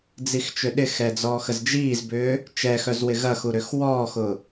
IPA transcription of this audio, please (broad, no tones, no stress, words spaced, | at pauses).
d͡zixt͡ʃʏɗɪxɛ d͡zɔːxəzd͡ʒiːzbʏː | t͡ʃɛxœz wɪɣɐxu ɾʏxwɔːxʊ